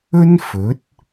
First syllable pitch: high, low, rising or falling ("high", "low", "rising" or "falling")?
high